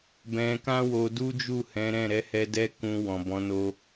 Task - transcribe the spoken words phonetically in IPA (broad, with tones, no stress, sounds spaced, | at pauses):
b ɛ̃˧ k ã˦ w o˧ d u˦ d͡ʒ u˦˨ h ɛ̃˨˦ ɾ ɛ̃˦˨ ɾ ɛ˨˦ h ɛ˧ d ɛ˧ k ũ˨ w ɔ̃˨ b ɔ̃˨˦ n o˦